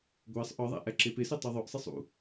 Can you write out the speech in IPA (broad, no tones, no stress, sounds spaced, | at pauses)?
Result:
ɡʷ æ sˤ ʔ ɒ ðˤ æ̰ ʔ æ ǁ e p e s e tˤ i ðˤ o ʔ sˤ i sˤ ṵ